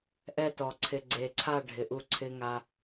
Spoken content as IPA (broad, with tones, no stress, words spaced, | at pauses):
ʔɛ˦tɔ˨ ǀʰɪ˨ɡ͡ǀe˨ǀʰa˦˨ ɖʱɪ˨ʔu˦ ǀʰɪ˦ŋa˦